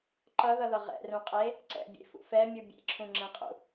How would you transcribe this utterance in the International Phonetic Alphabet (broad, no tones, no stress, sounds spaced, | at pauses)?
ǃ ʌ ð ʌ ð ʌ ʁ ɛ̰ r ũ qʼ e | ǀ ɛ̰ bʲ ḛ f ṵ f ɛ mʲ u bʲ ḛ ǁʰ ũ ŋ͡ǁ ɛ̃ qʼ ṵ